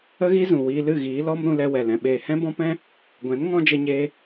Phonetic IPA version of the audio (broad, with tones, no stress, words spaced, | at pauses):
ə˧ɣi˧ zũ˨wiː˧lɨ˦˨ɣiː˨˦ lɔ˦m ɾũ˧lɛ˧wɛ˨lɛ̃˨ ɓeː˨hɛ̃˦ bɔ̃˦pɛ̃˦ | ɡʷɛ̃˨˦n ŋɔ̃˦d͡ʒə˧ɲeː˧